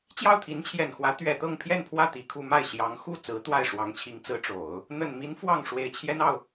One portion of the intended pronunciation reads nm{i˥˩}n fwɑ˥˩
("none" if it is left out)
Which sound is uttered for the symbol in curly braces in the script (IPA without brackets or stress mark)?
i˧˥